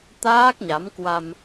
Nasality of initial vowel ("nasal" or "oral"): oral